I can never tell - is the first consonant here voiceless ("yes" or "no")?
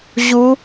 no